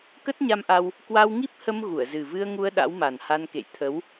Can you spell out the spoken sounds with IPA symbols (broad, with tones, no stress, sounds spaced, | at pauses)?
k ə˦˥ t̚ ɲ a˧ m ʔ a˧ w | k w a˧ w ŋ i˦˥ p̚ h ə˧ m ɣ u˧˩ ə̯ z ɨ˨˩ v ɨ˧ ə̯ ŋ u˧ ə̯ ɗ a̰˧˥ w m a˨˩ n h a˧ n k ḛ˧˨ j t̪ʰ ə˨˦ w